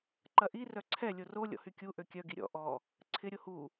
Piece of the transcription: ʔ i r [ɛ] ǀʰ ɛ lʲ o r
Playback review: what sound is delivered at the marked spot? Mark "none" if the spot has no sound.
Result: œ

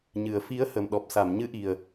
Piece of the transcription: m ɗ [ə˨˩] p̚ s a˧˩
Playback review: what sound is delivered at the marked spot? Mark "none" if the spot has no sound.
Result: ɔ˨˩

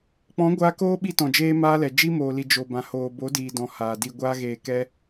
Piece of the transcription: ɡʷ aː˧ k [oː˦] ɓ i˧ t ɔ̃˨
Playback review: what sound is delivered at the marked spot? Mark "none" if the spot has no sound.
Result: oː˦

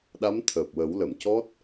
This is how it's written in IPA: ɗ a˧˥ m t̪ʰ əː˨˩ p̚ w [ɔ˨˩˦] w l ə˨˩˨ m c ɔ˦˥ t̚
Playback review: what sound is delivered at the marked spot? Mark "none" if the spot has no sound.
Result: ə˨˩˦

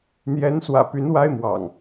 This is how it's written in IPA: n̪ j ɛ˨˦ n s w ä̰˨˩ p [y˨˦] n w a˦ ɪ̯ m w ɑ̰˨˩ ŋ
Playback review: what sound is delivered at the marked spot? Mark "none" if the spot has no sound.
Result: y˨˦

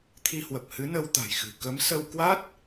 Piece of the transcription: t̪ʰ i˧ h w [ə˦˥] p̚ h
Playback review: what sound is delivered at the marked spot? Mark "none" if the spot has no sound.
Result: ə˨˩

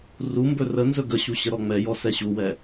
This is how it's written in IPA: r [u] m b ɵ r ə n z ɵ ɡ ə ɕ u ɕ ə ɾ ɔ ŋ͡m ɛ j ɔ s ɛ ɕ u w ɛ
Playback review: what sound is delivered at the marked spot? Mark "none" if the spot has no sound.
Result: u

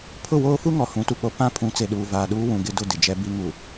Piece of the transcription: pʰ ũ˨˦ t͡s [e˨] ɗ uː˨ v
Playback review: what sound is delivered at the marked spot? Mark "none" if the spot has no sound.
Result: e˨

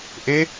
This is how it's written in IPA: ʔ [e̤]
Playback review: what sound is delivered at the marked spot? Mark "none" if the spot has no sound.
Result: e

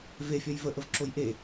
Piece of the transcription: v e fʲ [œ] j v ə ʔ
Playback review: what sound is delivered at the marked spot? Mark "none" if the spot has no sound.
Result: œ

